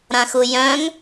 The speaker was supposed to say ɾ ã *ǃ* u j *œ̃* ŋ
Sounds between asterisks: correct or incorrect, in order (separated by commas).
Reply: incorrect, correct